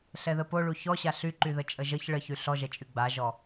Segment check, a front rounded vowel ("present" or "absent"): present